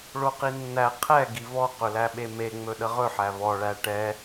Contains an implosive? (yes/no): yes